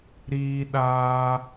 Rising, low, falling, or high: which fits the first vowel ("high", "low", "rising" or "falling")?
high